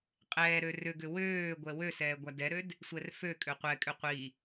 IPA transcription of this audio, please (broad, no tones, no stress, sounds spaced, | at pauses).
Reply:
qʼ ɛː ɾ ø r ʏ ɡ ʏ w øː ɡʷ ɛ w ø s ɛː ɡʷ a d ɛ ɾ ø d | sʷ ɛ r f ø kʼ ø qʷ ɛ kʼ ʏ qʷ i